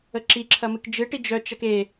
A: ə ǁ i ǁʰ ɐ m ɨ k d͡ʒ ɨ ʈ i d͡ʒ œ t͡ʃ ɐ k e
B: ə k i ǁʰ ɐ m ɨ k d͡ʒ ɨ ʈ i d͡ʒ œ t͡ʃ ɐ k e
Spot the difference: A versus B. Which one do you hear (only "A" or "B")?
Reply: A